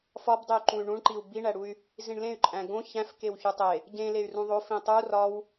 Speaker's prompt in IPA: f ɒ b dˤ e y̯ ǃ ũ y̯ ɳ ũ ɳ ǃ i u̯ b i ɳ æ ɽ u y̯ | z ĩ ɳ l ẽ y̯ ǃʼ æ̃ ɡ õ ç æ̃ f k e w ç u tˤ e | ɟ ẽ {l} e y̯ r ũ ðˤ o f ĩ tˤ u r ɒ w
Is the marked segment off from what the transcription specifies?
no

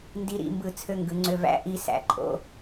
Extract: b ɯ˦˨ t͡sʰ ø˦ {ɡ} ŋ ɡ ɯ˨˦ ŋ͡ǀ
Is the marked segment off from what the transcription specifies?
yes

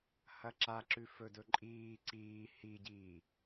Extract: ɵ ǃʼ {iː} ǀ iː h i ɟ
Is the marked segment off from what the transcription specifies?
no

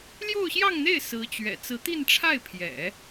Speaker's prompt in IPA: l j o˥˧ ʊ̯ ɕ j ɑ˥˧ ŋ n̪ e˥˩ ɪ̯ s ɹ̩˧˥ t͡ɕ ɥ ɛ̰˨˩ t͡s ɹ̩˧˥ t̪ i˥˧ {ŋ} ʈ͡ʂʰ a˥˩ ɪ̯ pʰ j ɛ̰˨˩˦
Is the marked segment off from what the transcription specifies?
yes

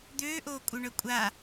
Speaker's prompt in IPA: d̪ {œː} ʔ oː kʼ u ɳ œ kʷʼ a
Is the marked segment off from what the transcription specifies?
yes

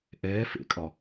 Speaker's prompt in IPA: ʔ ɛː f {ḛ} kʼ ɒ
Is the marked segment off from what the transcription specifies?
no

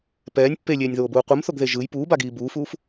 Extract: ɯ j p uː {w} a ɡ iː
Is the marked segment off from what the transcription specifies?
yes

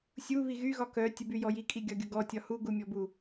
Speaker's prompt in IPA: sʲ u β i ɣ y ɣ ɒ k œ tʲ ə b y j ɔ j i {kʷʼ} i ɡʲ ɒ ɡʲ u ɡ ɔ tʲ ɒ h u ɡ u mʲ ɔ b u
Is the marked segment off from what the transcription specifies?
yes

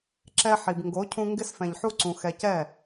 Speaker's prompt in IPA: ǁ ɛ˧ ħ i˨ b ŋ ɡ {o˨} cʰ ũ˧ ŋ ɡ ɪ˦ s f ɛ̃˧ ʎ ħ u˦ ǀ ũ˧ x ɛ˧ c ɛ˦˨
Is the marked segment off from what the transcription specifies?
yes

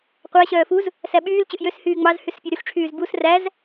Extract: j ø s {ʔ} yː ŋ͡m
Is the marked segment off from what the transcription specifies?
yes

